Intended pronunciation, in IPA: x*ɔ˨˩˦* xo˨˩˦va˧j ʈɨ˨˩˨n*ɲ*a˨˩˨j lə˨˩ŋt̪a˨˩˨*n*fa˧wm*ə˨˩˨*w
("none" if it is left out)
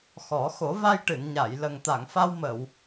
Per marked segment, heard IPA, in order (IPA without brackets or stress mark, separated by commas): ɔ˨˩˦, ɲ, ŋ, ə˨˩˨